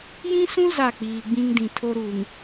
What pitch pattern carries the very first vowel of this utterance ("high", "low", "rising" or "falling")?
high